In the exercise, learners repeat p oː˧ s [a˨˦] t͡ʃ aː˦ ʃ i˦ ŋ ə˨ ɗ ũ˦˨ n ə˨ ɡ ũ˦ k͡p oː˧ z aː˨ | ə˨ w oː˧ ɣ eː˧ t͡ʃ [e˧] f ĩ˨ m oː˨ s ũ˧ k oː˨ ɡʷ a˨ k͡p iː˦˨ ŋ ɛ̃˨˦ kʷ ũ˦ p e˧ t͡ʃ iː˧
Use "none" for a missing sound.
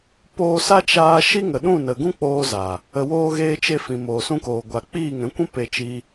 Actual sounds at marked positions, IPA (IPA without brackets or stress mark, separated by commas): a˦, e˧